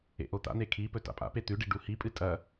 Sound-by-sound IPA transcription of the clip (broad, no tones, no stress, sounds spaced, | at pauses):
ḛ ʔ o t̪ a̰ n̪ e kʰ i p ɵ t a̰ pʼ a̰ p e t̪ ʉ ɖ i ɖ u h i pʼ ɨ tʼ ɐ